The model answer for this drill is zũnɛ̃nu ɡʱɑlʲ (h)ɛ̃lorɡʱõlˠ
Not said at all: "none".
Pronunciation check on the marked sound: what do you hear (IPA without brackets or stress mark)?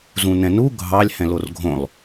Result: h